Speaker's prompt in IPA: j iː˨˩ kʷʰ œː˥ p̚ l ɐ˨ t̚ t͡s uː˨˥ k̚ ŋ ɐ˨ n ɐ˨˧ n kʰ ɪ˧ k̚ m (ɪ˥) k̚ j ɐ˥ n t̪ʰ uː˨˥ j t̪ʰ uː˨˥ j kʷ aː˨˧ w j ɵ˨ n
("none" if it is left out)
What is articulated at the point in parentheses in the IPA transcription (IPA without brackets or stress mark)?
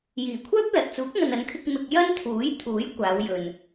ɪ˧